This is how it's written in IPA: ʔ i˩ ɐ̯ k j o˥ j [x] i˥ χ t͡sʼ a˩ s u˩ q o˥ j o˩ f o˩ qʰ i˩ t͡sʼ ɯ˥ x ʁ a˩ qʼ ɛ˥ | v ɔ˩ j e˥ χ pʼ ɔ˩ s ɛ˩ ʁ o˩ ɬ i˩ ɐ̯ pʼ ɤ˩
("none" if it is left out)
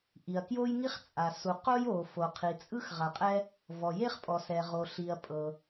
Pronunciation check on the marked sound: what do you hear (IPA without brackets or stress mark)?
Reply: ŋ